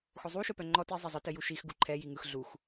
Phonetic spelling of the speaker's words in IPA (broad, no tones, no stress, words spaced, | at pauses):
xozˤu ʃœpœŋ͡ǃɔ ti zˤɛzˤɯ tɘjuʃix ɡuǃʰɛ jiŋɯx ɮux